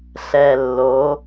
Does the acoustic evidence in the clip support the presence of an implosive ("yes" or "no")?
no